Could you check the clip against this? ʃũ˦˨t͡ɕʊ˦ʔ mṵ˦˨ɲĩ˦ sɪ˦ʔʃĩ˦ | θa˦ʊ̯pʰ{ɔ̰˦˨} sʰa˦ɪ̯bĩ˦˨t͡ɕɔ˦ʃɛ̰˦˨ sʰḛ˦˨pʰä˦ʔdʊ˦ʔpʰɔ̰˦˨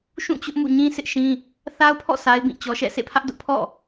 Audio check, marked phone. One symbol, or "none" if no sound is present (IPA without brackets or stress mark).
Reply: ɔ̰˦˨